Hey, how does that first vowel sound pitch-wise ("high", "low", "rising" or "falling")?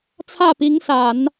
falling